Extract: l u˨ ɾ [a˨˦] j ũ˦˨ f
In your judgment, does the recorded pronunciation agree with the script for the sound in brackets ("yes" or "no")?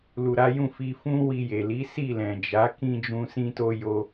yes